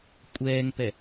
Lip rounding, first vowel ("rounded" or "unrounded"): unrounded